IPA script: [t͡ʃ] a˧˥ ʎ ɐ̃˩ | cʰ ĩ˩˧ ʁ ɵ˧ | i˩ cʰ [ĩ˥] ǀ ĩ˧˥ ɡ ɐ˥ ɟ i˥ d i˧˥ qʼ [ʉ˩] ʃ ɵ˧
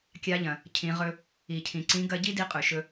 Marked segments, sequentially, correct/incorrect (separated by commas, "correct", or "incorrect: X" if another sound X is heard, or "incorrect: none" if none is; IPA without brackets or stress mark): incorrect: kʲ, incorrect: ĩ˩, correct